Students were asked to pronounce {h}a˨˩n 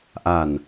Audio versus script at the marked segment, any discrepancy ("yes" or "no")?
yes